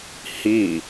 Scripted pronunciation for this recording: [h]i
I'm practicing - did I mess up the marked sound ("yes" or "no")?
no